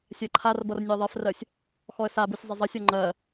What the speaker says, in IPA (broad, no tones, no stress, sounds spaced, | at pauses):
sʲ ɜ ǃʰ a r b ʌ r nʲ ə ɪ̯ ðˤ ɜ f r ɜ sʲ | x ɔ ə̯ s a b u sʲ zˤ ə zˤ ə sʲ ɔ ŋ͡ǃ ɜ